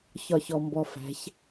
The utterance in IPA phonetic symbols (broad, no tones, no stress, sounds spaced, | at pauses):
ç ɒ ç ɔ m b ɔ f æ̤ ç